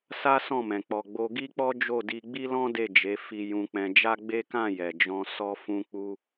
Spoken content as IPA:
s a˦ s ɔ̃˦˨ m ɛ̃˨ k͡p ɔ˨ ɡ͡b o˧ ɡ i˦ k͡p ɔ˦ d͡ʒ o˦˨ d i˧ ɡ͡b i˦ l ɔ̃˦ d e˦˨ d͡ʒ e˨˦ f i˧ j ũ˧ k͡p ɛ̃˧ d͡ʒ a˦ ɡ͡b e˦ k ã˦˨ j ɛ˨ d͡ʒ ɔ̃˧ s ɔ˦ f ũ˦ k͡p u˦

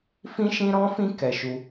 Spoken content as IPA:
f ĩ˦ ʃ ĩ˦ ɾ ɔ̃˦ f ĩ˦ k ɛ˧ ʃ u˧

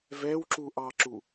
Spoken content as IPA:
v ɛ w ǁ u ʔ ɑ ǁ u

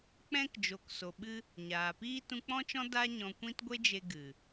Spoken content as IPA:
k͡p ɛ̃˧ k d͡ʒ o˨ k s o˨ ɓ ɨ˧ | ɲ aː˨ p iː˦ t ũ˧ k͡p ɔ̃˦ t͡ʃ ɔ̃˦ d a˦ ɲ ɔ̃˧ kʷ ĩ˦ t ɡʷ e˦ d͡ʒ e˧ ɡ ɨ˨

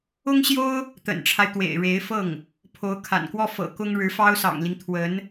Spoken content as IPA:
ʊ˥ ŋ ɕ j o˥ ʊ̯ | t̪ ə̰˨˩ n ʈ͡ʂʰ a˦ ɪ̯ t̪ w ḛ˨˩ ɪ̯ ɻ e˧˥ ɪ̯ f ɤ˥˩ ŋ | pʰ o˧˥ ʊ̯ kʰ a̰˨˩ n k w ɔ˥˩ f ɤ̰˨˩ k ʊ˥ ŋ ɻ ɻ̩˧˥ f ɑ˥ ʊ̯ s ɑ̰˨˩ ŋ l i˦ ŋ t̪ʰ w ə˧˥ n

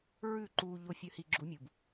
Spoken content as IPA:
ɹ ʉ˥˩ ǃ uː˧ ʎ o˧ fʲ ɵ˧ h i˧ ɡ͡ǁ u˧˥ mʲ u˩˧˩ b

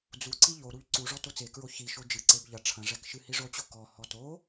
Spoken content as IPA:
d͡z u ǀ i ʎ o ɾ u ʎ ǀ u ʐ ɔ t o t͡s e k ɹ o ç i ʃ o d͡ʒ ɨ ǀ e b ʎ ɐ ʈ͡ʂʰ ɐ̃ ʐ ɛ k ʃ ɨ h i ʐ o t͡ɕ o k ɔ h ɔ t o

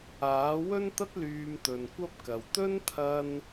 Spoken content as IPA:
aː˨˥ w ɵ˥ n t̪ ɐ˥ t̚ l yː˧ m t̪ ɵ˨ n kʷ ɐ˥ p̚ k ɐ˨ w t̪ ɵ˥ n t̪ʰ ɐ˧ n

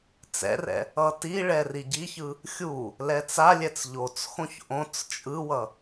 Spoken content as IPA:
t͡s ɛ̰ r ɛ̰ | ʌ t i ɭ ɛ r i ɟ i ç ɯ | xʲ u | l ɛ t͡s a lʲ ɛ t͡s ʎ o t͡s x õ ç ʔ õ t͡s t͡ʃʼ ɯ w ʌ

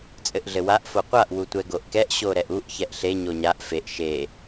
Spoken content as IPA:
t͡sʼ ɘ ʔ ɮ ɘ w a ʔ f o qʷ a ʔ w u tʷ ɛ ɡ o ʔ k ɛ ʔ ɕ o ɾ ɛ ʔ u ʔ ç ɛ ʔ ɬ e ɲ o ɲ a ʔ f e ʔ ʃ e

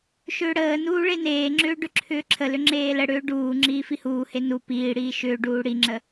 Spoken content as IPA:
ʃ ʏː ɽ əː n uː ɭ e n eː ŋ͡ǁ ʏː ɖ ʏ ǁʰ ʏː ǁʰ ə l ʏ ŋ͡ǁ eː l ə ɽ ʏː ɖ uː ŋ͡ǁ iː f i h uː h e n u p iː ɽ iː ʃ ʏː ɖ uː ɽ i ŋ͡ǁ ə

